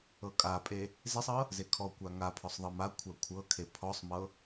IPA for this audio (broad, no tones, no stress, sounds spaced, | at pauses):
ɤ kʼ a pʼ e | z e sˤ ɤ | z e kʰ ɔ kʷ a ŋ a pʰ ɔ sˤ ðˤ ɤ m a kʷʰ a kʷʰ ɤ kʰ e pʰ ɔ sˤ m ɤ